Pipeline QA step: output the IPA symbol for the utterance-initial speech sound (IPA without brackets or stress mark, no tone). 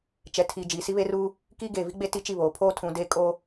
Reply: t͡ʃ